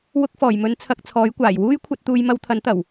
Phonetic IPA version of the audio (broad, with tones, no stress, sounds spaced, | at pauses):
w ʊ˧ k̚ f ɔː˨˩ j m ɵ˨˧ n t͡sʰ ɐ˧ k̚ t͡sʰ ɔː˨˥ j kʷ aː˨˩ j w uː˥ j kʷʰ ɐ˧ t̚ t̪ uː˧ j m ɐ˧ w t̪ʰ ɐ˨˥ n t̪ ɐ˨˩ w